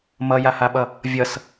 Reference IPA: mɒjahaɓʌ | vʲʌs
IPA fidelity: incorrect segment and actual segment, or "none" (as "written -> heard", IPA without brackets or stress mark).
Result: ɒ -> ʌ